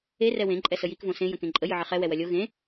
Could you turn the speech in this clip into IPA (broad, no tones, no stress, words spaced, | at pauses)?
e rɛwẽ ǃʼɛsəjik võsẽ jə̃kẽǃʼə jɨʕəχɛ wɛwɐlʲo ɣẽ